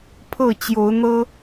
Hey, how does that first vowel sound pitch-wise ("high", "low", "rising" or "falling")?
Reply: falling